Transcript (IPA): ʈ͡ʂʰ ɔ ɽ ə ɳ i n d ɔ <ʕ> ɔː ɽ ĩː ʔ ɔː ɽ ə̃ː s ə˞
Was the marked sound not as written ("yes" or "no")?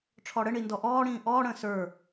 yes